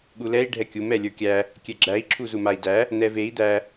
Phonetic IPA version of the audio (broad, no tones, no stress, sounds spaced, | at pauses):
ɠ u l ɛ i̯ ɖʱ ɛ kʲ u m ɛ lʲ ə˞ kʲ æ | kʲ ɛ ɡ͡ǁ æ i̯ ǁʰ u z u m a i̯ d æ | n̪ ɛ v e i̯ d̪ æ